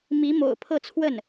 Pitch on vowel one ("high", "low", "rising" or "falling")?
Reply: rising